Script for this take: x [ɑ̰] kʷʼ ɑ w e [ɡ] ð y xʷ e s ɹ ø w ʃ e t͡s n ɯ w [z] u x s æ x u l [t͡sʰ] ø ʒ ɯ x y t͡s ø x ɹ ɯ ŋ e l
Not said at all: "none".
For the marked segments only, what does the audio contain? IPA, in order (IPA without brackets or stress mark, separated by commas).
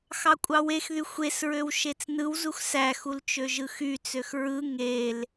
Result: ɑ, x, z, t͡ʃ